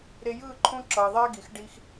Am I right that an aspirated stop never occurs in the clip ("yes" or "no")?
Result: no